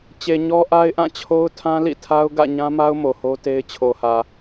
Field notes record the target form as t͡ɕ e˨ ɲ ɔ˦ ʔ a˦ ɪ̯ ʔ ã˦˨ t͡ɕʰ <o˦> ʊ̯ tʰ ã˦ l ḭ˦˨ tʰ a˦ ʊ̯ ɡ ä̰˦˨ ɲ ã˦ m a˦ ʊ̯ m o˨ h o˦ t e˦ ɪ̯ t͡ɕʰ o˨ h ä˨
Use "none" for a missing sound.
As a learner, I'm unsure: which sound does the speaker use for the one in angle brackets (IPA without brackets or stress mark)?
o˦